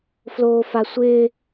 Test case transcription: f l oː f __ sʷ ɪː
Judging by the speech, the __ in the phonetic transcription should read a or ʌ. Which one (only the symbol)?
a